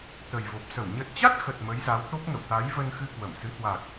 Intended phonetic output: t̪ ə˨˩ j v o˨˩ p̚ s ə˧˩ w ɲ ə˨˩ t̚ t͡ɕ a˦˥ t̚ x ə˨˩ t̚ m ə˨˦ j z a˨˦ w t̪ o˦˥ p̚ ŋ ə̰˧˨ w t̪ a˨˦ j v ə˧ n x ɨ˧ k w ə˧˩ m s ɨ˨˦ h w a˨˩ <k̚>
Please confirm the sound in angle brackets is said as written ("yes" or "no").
yes